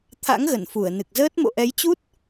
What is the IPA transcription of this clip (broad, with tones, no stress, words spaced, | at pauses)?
t̪ʰa̰˧˥ŋɣə˧˩n fu˧˩ə̯nɨ˨˩k̚zəː˦˥t̚ mo̰˧˨ʔɛ˨˦jt͡ɕu˦˥t̚